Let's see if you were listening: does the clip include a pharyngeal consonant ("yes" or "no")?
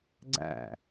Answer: no